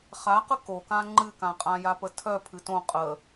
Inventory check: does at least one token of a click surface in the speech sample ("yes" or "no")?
yes